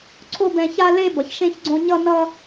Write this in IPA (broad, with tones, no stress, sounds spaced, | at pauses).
ǀʰ o˥ b ɛ̃˦ ç a˥ l e˦ b ʌ˨ ç ʃ ẽ˦ ç ɡ͡ǀ õ˦ ɲ ʌ˥ n ʌ˥